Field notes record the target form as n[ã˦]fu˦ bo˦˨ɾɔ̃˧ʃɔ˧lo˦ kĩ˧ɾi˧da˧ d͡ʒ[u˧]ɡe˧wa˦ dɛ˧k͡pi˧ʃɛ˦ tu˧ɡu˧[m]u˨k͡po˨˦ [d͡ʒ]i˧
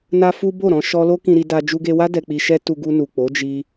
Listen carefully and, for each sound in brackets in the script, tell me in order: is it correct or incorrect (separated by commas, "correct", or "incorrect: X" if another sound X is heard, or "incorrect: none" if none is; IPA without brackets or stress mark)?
incorrect: a˦, correct, incorrect: n, correct